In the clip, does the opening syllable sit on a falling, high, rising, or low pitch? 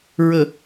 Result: low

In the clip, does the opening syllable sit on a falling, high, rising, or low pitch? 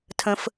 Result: low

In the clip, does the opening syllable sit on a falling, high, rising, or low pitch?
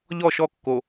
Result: falling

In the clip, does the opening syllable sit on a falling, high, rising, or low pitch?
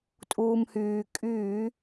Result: low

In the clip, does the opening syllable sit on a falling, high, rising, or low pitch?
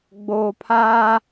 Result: low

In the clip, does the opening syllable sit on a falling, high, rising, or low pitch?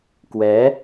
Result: rising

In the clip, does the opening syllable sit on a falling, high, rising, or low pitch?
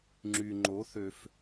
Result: low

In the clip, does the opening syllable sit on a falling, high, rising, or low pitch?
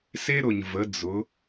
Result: high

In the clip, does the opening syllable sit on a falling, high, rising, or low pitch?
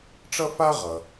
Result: high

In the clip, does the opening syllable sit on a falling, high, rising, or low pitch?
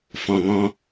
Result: low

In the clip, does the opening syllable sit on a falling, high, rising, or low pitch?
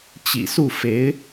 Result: low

